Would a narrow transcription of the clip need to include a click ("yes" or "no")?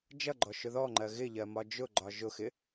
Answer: yes